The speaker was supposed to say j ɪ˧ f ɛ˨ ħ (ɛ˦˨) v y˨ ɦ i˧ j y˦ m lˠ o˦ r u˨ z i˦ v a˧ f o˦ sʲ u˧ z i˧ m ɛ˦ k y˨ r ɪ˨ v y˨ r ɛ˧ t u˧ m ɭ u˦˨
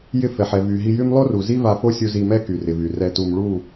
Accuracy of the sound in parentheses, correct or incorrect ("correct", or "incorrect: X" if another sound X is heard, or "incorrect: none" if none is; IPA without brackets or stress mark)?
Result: incorrect: ɛ˨